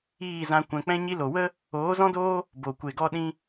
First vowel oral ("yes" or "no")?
yes